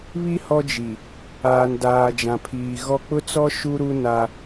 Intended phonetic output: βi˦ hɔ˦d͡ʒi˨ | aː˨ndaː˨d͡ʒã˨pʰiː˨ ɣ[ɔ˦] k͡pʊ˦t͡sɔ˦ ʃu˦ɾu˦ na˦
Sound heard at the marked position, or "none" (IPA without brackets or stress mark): ɔ˦